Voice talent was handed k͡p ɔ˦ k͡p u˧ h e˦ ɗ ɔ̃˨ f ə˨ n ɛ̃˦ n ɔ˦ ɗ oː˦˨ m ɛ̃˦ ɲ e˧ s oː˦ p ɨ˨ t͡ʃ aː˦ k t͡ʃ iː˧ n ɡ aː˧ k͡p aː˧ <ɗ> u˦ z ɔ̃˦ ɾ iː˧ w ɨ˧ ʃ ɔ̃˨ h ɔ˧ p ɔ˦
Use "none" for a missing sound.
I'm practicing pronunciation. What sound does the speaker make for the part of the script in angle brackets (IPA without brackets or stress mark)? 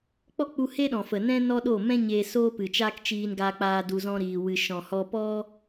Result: d